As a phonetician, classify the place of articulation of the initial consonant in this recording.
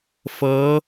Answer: labial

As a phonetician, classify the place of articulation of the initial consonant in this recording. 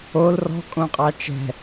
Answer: alveolar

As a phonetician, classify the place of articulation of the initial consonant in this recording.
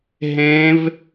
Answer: glottal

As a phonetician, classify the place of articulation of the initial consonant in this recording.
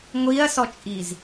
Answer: velar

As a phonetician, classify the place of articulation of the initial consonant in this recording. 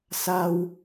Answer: alveolar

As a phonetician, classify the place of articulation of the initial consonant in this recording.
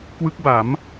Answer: velar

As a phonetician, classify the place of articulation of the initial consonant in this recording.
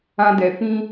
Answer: alveolar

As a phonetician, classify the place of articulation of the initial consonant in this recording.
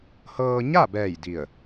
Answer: glottal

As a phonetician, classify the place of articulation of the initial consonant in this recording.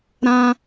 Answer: alveolar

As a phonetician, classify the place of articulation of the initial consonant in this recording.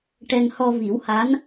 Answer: retroflex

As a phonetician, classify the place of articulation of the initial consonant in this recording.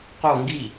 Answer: uvular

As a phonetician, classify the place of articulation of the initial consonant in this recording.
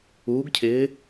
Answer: velar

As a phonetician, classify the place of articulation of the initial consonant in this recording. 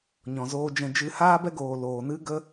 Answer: palatal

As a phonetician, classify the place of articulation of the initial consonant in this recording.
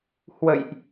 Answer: glottal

